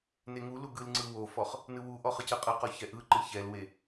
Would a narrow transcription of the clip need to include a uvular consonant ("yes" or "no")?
yes